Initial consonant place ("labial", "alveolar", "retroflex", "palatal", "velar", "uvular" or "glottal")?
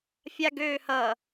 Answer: labial